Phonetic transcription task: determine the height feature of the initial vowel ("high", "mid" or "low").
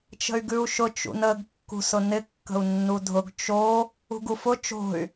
mid